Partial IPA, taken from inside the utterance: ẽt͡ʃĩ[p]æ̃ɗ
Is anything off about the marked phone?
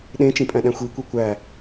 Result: yes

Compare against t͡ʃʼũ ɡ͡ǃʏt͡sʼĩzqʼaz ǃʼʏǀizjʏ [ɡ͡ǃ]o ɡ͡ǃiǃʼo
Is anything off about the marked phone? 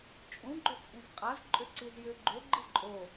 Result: no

